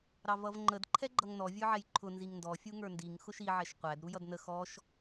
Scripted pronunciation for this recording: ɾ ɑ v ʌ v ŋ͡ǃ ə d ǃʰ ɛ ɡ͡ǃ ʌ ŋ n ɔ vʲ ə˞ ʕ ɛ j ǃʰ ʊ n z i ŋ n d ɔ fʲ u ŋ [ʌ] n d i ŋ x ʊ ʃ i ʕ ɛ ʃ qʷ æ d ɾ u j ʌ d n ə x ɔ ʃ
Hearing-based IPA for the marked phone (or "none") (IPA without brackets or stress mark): ə˞